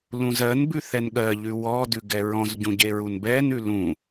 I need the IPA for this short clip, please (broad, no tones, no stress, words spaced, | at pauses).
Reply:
lũzɜn bʉθɛnɠɜ ʎʉwɔ dʉɡɛɹɔ̃z ɟũɟeɹunbɛn ʉlũ